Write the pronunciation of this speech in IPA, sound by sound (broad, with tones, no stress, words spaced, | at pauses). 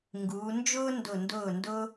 ŋɡuː˩˧nd͡ʒʊː˥ndʊ˧˩ ndʊː˧˩ndʊ˧